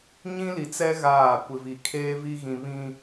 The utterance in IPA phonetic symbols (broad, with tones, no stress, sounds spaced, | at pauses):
ɲ ĩ˦ l i˨ t͡s ɛ˦ ɣ aː˦˨ kʷ ɪ˨ v i˨ kʰ eː˦ v i˦ ɣ ĩ˦ β ĩ˦